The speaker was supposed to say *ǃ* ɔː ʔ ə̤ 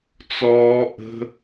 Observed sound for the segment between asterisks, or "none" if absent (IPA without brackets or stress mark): t͡s